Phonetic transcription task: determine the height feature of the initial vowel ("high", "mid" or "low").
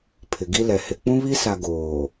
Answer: high